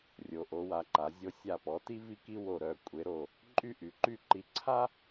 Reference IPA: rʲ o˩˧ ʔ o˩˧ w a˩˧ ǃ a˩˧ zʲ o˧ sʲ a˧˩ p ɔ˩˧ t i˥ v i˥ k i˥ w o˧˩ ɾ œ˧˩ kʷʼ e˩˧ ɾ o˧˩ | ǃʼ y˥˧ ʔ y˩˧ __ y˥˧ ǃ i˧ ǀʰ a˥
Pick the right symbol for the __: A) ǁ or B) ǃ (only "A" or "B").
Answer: B